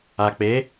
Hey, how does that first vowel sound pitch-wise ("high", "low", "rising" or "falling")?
low